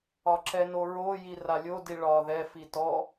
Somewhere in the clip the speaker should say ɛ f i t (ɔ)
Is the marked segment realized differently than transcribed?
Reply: no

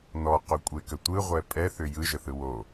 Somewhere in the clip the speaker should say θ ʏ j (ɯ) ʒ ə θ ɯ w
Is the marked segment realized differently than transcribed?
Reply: no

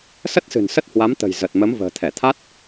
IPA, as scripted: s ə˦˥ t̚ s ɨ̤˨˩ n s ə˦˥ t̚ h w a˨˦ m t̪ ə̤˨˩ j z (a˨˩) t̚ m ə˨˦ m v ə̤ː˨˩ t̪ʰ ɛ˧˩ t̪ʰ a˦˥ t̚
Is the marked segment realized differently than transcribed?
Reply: yes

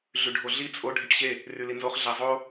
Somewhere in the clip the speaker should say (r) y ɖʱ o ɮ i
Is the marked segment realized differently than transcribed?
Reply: yes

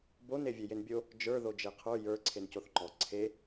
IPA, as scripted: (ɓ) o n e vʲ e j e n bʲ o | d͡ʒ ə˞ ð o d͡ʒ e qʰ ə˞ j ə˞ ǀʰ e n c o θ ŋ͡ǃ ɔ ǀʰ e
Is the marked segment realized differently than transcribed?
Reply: yes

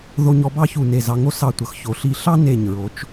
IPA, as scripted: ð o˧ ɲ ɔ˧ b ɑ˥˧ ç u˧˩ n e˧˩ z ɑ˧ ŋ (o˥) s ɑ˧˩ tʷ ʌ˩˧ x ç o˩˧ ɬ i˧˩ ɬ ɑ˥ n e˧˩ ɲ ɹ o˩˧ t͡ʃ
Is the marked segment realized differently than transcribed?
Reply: no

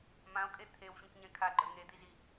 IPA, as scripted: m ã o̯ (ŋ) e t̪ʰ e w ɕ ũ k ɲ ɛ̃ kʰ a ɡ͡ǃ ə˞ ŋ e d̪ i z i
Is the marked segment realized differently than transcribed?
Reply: yes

